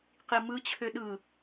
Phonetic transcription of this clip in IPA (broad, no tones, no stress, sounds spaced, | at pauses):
q i m ɯ t͡ɕʰ ø ɗ ɯ